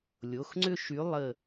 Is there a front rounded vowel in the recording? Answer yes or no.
yes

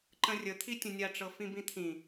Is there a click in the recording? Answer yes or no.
yes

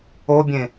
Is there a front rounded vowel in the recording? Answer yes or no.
no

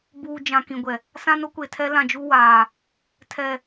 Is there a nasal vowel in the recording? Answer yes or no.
yes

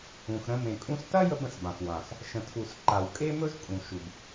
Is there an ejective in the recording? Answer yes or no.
yes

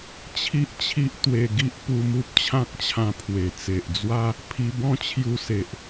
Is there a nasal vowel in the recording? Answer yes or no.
yes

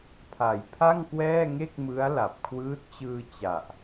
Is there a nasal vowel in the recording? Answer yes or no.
no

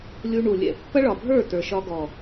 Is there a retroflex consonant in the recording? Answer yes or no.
yes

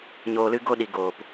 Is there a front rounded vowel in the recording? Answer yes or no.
no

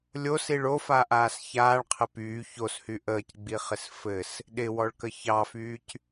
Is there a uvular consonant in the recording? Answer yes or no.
yes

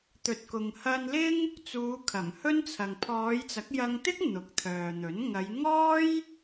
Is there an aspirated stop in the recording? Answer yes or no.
yes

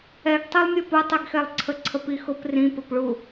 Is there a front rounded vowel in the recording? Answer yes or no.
no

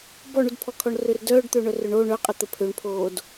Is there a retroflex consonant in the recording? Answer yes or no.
yes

